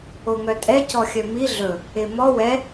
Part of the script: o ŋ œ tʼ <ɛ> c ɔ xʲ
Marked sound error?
no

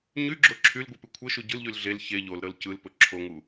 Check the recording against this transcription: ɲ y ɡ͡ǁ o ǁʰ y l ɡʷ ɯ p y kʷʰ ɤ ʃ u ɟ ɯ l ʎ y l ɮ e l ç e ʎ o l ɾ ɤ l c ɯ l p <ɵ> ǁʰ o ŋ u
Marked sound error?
no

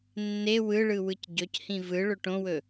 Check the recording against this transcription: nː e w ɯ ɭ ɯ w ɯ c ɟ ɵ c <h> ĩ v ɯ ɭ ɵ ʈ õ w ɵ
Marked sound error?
no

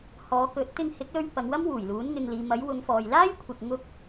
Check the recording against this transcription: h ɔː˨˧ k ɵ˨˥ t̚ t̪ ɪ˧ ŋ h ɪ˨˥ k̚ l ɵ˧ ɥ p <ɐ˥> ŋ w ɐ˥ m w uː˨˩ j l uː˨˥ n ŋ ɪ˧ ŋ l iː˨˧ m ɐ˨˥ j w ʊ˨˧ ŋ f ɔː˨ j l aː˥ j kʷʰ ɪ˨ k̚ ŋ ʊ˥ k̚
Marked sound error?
yes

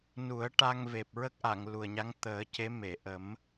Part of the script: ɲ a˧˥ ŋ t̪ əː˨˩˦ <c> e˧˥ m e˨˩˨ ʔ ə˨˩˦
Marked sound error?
no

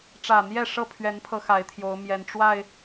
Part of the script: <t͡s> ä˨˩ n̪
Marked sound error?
yes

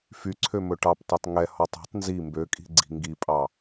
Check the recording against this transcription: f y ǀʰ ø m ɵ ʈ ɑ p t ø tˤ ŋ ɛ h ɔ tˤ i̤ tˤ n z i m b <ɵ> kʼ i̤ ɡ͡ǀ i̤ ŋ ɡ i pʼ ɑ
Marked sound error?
yes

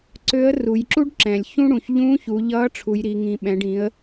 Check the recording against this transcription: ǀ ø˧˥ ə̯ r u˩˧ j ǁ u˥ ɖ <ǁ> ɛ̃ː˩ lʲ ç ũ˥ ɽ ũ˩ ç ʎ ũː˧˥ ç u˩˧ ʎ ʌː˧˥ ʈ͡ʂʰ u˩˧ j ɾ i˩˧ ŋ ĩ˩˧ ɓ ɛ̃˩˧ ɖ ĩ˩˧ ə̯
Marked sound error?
no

